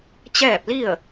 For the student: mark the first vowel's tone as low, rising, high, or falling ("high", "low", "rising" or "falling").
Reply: falling